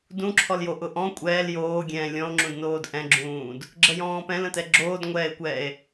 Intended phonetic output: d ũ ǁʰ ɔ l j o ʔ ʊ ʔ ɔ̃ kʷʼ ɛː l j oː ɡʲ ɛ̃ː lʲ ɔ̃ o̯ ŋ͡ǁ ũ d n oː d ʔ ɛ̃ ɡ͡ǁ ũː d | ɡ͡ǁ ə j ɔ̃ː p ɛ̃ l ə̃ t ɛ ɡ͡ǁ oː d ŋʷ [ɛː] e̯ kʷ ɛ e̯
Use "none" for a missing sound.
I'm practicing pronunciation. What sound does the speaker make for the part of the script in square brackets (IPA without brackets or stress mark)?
ɛː